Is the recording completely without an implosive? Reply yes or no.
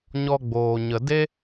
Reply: yes